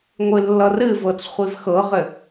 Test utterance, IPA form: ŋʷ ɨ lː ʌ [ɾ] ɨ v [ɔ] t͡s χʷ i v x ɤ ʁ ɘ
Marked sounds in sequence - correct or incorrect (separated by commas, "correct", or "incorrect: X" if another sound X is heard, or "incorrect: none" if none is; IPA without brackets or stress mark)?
incorrect: r, incorrect: ɤ